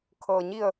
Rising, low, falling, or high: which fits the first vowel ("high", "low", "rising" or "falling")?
low